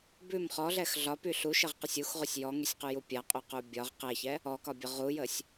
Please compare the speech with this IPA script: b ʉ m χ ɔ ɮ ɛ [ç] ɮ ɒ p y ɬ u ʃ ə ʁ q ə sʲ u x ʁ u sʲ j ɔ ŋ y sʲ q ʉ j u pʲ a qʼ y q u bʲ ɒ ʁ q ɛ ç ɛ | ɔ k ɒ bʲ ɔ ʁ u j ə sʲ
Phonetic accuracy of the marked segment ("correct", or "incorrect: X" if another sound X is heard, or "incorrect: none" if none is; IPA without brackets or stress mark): incorrect: x